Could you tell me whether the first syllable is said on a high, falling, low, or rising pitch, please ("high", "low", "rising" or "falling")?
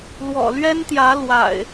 low